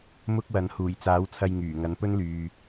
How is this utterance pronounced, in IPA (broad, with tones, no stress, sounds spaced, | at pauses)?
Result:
m ʊ˥ k̚ w ɐ˨˥ n h uː˨˩ j t͡s aː˨˥ w t͡sʰ ɐ˧ j ŋ yː˨˩ ŋ ɐ˨˥ n p ɵ˥ n l yː˨